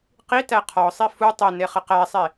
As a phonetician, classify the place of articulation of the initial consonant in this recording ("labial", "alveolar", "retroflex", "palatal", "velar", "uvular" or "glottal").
uvular